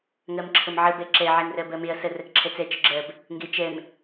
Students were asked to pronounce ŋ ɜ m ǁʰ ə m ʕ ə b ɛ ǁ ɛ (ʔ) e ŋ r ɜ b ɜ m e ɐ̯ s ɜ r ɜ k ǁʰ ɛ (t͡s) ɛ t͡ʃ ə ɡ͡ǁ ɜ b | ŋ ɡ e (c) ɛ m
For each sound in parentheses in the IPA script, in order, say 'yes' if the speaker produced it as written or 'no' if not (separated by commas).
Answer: no, yes, no